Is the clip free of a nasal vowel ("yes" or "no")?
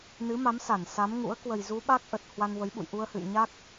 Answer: yes